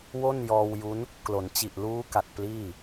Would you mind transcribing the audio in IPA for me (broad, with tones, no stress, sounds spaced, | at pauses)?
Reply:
w o˥˩ n j ɔː˧ w j u˦˥ n | k l o˩˦ n t͡ɕ i˨˩ ʔ l uː˦˥ k a˨˩ t̚ p l iː˥˩